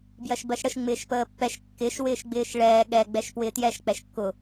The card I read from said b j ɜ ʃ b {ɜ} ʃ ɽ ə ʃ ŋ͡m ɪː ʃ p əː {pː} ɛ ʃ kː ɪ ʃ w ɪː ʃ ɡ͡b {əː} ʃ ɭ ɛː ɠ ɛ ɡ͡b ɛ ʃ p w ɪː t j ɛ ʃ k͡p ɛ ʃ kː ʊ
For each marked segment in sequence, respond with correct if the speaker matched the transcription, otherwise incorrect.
correct, correct, incorrect: ɪː

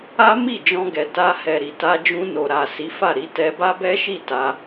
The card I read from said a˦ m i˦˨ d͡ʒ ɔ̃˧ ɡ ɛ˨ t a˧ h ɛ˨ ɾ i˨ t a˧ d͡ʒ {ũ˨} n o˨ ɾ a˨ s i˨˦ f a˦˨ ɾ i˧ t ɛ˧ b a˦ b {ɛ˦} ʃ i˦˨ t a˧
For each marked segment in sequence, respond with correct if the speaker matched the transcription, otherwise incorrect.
incorrect: ũ˧, correct

